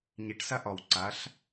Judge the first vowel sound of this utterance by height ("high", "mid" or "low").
high